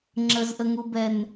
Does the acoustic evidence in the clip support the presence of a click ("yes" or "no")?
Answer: yes